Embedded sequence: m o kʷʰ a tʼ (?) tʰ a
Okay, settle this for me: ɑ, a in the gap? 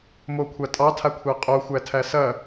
ɑ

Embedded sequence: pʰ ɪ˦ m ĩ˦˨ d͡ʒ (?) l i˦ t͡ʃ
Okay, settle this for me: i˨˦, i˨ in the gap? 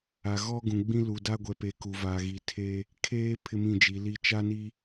i˨˦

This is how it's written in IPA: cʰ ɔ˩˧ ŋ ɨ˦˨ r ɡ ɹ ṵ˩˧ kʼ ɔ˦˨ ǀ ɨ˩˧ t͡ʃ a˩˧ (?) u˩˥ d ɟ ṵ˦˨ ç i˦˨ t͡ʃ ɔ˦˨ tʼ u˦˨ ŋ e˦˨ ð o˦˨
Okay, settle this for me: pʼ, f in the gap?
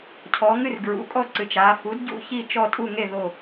f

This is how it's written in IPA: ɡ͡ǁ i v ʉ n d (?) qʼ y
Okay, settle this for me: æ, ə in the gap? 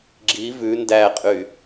æ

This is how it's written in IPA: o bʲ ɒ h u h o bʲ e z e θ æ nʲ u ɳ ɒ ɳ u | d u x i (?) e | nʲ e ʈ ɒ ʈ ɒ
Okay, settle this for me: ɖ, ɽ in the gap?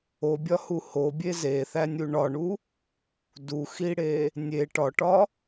ɽ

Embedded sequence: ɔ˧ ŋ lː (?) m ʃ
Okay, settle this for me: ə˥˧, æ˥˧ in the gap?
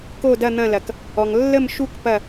ə˥˧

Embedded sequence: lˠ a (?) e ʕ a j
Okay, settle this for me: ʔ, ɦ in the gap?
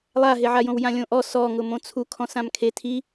ɦ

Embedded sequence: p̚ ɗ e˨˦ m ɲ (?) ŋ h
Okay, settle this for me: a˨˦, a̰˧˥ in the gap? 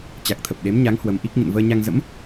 a˨˦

